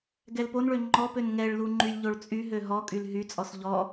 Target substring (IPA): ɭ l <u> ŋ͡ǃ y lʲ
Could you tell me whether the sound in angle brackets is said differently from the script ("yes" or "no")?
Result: no